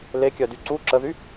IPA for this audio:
lekʲœdy ǀu ǁəðy

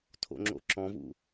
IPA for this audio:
tʰo̰ŋ͡ǁo̰ǁɔ̃vṵ

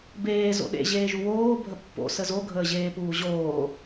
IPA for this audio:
beː zo̰ɗḛ ʑeːʒuwoː bʱəpːo̰ səzo ɡʱəːʑeːpuːʑoː

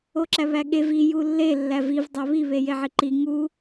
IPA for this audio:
oǁæβæɠev i julːe lːæviv dˤæβi βejeʕiǃi ŋu

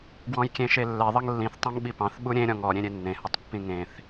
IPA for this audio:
ɡwɔ̃jkʲẽʃelːɛ ðˤʌŋlːĩθ tˤõŋɓipɑ̃θ ɓuɾʲẽ ɾʲɔ̃ŋɔ ɾʲẽɾʲenːẽ hʌtˤpːĩŋẽθ

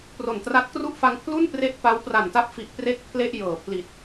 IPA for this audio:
pro˨˩ntra˦˥t̚kru˥˩ʔ fa˧ŋ pʰlu˥˩npre˦˥ʔ pa˦˥w pra˨˩nta˦˥p̚fi˨˩ʔ pre˥˩k̚pʰle˥˩ʔ jɤː˩˦ pʰli˨˩t̚

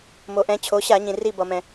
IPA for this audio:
mo˩ʔɛ̃˩˧ t͡ɕʰo˩˧ɕa˧˩˧ɲĩ˩ ri˧˩bʌ˩mɛ̃˩

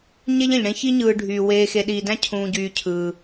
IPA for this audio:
ɲe˥ʎẽ˩ʎɽẽ˦çi˥ ɲɯː˨ɖʱyː˩weː˨ xe˨ɗiː˨dæ̃˥ cʰũː˨ɟyː˨cʰɯː˩

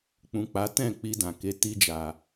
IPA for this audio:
k͡pũ˨k͡pa˨˦tɛ̃˦˨ k͡pi˧dã˨ke˨˦ ti˧d͡ʒa˨

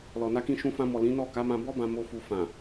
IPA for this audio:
lɔ˨na˧kĩ˧ ʃũ˧fã˧mɔ˨ lĩ˨˦nɔ˦˨ ka˨˦mã˧ bɔ˦bã˧ mo˧ fu˨fã˨

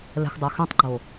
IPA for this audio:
lɛ̤xdˤoxẽtˤɡ͡ǃo

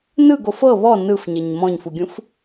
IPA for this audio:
nɯɡof ɤ βɔ nɯfɲeɲ mɔ̃ɲfuɡʲũf

